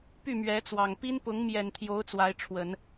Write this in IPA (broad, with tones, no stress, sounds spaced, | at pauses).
p y˥˩ m ɥ ɛ˧˥ t͡s w ɑ˨˩ ŋ p i˥ n p ʊ˧˥ ŋ m j ɛ˨˩ n t̪ʰ j o˧˥ ʊ̯ t͡s w a˧˥ ɪ̯ ʈ͡ʂʰ w ə˨˩˦ n